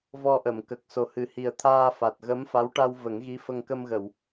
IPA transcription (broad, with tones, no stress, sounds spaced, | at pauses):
v ɔ˧ ʔ ə˨˩˨ m k ə˨˩ k̚ s o˨˩ h ɨ˨˩ h i˨˩ ə̯ t̪ʰ aː˧ f a˨˩ t̚ ɣ ə˧˥ m f a˧˥ w ʈ a˧ w v ə˨˩˦ ŋ ɣ i˧˥ f ə˧ ŋ k ə˧ m ɣ ə˨˩˨ w